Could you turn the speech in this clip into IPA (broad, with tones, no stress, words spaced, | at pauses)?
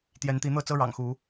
t̪jɛ˨˦nt̪i˨˦n̪ɤ˥˨t͡sɤ˦ ɻɑ̰˨˩ŋxu˨˦